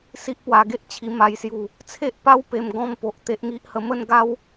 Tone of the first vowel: high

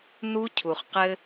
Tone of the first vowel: high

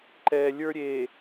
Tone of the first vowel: low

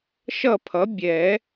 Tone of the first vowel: falling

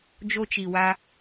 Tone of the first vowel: high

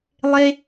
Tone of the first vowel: high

